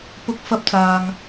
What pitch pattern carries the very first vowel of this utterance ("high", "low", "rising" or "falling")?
rising